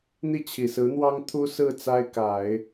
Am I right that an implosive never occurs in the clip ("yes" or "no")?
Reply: yes